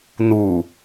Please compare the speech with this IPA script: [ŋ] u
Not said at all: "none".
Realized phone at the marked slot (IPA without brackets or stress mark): n